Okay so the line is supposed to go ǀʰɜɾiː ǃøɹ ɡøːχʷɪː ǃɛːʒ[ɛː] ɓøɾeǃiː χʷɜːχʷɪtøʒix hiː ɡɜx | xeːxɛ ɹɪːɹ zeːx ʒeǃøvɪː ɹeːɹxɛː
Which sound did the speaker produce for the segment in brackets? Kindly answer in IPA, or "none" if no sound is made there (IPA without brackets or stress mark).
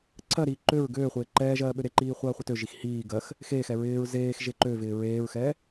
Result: ɜː